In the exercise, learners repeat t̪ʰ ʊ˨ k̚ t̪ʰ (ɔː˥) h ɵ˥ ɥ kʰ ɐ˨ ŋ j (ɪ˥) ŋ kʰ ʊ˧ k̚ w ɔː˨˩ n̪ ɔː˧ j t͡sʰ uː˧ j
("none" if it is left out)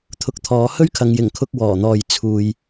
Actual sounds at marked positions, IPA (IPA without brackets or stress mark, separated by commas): ɔː˨˧, ɪ˨˩